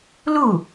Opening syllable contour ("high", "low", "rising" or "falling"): falling